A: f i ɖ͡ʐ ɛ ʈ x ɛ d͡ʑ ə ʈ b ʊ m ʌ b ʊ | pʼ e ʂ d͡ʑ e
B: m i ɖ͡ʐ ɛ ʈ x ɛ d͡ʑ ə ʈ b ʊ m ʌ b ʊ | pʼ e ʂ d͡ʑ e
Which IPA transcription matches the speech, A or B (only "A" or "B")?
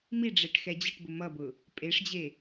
B